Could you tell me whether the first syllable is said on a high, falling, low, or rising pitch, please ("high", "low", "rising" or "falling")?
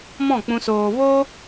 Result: falling